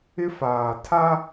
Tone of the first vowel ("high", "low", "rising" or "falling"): high